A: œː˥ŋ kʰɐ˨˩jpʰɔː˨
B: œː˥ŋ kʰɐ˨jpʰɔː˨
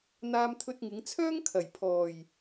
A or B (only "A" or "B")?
B